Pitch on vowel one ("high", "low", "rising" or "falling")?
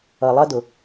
low